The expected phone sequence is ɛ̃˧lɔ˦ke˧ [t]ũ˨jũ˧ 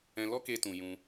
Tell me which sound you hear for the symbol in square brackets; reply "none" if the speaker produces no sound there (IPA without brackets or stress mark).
t